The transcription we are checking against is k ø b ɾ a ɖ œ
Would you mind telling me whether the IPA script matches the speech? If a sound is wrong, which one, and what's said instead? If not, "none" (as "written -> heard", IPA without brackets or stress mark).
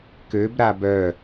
ɖ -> b